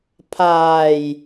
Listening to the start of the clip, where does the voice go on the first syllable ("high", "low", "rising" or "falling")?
low